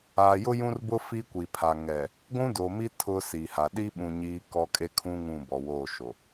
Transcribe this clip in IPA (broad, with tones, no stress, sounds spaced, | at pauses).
a˨ j ʊ˦ j ũ˦ r b ʊ˦ f i˦ kʷ i˨ pʰ a˨ ŋ ɛ˨ | ɡʷ ũ˦ d o˨ m i˦ tʰ ʊ˦ s i˨ h a˨ ɗ i˦ ɓ ũ˨ ɲ iː˦ k ɔ˦ kʼ e˦ kʰ ũ˦ ŋ ũ˦˨ b ɔ˨ w oː˦˨ ʃ o˨